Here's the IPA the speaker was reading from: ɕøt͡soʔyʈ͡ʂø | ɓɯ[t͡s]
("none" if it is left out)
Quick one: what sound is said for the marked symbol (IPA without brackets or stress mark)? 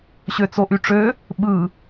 none